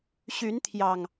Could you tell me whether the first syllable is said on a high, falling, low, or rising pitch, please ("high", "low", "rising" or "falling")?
rising